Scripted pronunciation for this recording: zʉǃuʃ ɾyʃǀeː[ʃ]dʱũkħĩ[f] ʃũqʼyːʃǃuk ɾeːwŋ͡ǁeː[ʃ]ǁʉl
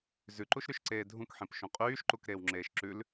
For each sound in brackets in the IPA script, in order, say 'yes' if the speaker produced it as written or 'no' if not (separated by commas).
no, no, yes